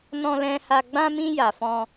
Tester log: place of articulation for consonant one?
alveolar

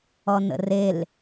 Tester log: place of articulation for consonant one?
alveolar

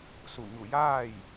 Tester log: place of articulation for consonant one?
alveolar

